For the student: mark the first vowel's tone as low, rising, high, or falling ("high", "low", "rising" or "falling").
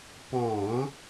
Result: low